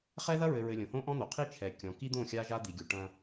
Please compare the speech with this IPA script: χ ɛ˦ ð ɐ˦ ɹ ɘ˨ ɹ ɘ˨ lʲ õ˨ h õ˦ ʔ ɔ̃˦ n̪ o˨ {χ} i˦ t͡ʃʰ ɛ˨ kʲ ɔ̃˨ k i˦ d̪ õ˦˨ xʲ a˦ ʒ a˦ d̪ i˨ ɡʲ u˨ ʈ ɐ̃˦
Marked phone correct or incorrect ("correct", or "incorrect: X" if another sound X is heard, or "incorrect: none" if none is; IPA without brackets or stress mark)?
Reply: incorrect: qʰ